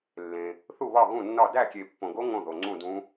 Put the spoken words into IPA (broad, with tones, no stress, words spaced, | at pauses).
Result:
lːẽ˨ | θu˥˨βɒ˥˨ɣũ˥˨nːɒ˥˨ dæ˥˨kʲe˨pːõ˨ɡo˦˥ ŋõ˥˨ðo˨ ŋ͡ǀũ˥˨dũ˦˥